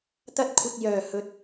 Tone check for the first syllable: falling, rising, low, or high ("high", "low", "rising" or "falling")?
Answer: high